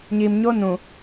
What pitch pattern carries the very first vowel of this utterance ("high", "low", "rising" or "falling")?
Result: low